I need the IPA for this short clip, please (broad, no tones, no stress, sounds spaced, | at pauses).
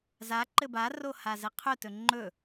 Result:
z a ǃ ɘ b a r o h a z ɘ qʰ ɵ t ɵ ŋ͡ǃ ɵ